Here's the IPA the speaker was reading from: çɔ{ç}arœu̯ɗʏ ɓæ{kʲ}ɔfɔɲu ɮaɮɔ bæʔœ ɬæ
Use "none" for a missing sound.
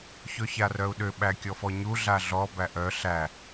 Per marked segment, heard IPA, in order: ç, kʲ

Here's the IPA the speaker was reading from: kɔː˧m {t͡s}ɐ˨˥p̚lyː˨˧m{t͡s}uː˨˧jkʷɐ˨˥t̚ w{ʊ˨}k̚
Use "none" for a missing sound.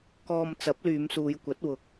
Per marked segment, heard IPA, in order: t͡s, s, ʊ˨˥

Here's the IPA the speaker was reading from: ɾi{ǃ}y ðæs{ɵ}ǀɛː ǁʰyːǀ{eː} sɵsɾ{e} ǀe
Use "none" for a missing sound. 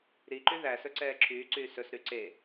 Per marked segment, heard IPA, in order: ǃ, ɵ, yː, y

